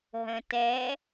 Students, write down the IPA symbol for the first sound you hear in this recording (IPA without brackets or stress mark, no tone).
ɦ